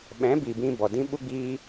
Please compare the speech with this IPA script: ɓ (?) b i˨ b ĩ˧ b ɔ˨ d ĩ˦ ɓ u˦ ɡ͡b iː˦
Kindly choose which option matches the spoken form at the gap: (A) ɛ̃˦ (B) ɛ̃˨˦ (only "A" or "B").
B